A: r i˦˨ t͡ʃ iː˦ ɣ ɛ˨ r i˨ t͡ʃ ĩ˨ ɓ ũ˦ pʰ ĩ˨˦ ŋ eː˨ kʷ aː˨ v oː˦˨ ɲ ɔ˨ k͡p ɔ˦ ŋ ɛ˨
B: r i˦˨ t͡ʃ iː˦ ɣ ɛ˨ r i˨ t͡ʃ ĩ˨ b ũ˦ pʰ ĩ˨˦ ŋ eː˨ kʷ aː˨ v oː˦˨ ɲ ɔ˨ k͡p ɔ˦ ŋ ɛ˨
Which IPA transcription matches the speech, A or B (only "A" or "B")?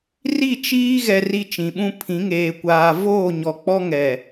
A